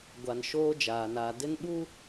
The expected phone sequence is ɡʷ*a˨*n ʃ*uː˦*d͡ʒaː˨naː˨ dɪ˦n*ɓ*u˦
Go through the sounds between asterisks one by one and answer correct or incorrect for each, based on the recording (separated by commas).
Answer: correct, incorrect, correct